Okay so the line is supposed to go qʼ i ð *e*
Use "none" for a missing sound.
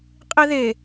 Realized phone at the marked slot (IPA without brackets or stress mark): e